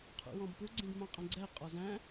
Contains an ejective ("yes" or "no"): yes